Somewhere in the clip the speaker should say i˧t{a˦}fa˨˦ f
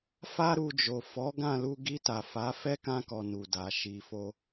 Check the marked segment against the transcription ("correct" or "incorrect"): incorrect